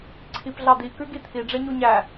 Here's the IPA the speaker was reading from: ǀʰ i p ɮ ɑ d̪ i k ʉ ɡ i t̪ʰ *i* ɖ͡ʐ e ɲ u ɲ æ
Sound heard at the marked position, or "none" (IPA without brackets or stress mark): i